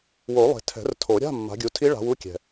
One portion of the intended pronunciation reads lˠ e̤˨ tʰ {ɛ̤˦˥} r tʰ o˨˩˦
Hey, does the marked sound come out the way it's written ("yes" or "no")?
no